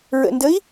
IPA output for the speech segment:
ɹə̰ndəi̯

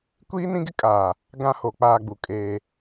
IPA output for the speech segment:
kʷiː˦nĩ˦ɡɪ˦kʼaː˨ | ɡã˦ho˨ k͡paː˦ɡ͡bu˨kʼeː˦

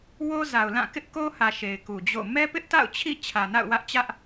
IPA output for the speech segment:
wo˦za˨ʊ̯lã˦˨ kɪ˦ʔ ko˦hä˨ ʃe˨ɪ̯ku˨d͡ʑo̰˦˨ mɛ˦pɪ˦ʔta̰˦˨ʊ̯ t͡ɕʰḭ˦˨ t͡ɕʰä˨na̰˦˨ʊ̯wä˦ʔt͡ɕä˦ʔ

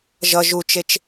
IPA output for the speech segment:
ʒʌ ʒut͡ʃet͡ʃ

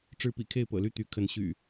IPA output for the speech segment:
ʈ͡ʂɻ̩˦pḭ˨˩ kʰe˥˨ɪ̯pɤ̰˨˩ly˥˨ t̪y˨˦kʰə˨˦n ɕy̰˨˩

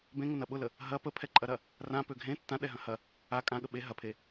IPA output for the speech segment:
bẽŋʊnɐ ɓʊlə | ɦɐ pəpʰɛǃʼɐɾɐ | rãpø ɡʱẽ tːãɗɛɦɐ̃ hɐ | a kʼãɠə ɓe ɦɐpʰe

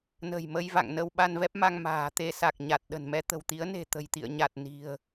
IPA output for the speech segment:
nə̤˨˩j mə˧jva̰˧˨ŋnə˧w ɓa˧nvɛ˦˥p̚ma˧ŋ ma̤ː˨˩t̪e˧sa˨˩k̚ ɲa˨˩t̚ɗə̤˨˩nmɛ˧ t̪ə̤˨˩wt̪i˨˦ə̯ne̤˨˩ t̪ə̤˨˩jt̪ḭ˧˨ə̯ ɲa˨˩t̚ni̤˨˩ə̯

